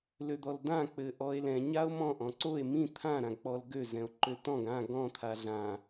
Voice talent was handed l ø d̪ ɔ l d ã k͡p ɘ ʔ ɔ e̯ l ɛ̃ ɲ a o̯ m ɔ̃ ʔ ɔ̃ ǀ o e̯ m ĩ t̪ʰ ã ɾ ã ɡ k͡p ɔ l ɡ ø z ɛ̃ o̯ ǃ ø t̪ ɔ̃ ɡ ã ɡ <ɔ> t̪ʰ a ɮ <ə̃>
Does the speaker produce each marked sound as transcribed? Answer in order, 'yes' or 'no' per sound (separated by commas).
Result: no, no